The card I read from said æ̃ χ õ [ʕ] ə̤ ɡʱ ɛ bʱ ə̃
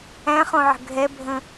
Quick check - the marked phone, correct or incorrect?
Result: correct